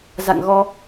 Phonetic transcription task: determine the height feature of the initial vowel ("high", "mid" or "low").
low